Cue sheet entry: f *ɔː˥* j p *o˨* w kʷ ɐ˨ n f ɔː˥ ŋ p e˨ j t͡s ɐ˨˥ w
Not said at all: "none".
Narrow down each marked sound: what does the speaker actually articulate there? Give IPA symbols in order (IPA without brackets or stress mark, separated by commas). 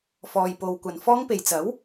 ɔː˨, o˨